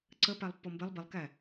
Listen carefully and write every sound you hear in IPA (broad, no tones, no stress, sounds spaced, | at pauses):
ǀ ə p æ lˠ pː ɔ m b ɪ lˠ b i lˠ k æ